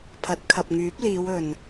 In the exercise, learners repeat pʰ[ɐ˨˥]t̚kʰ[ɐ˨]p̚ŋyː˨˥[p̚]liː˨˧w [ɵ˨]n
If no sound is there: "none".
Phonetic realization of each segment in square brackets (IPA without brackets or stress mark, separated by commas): ɐ˨˥, ɐ˨, p̚, ɵ˨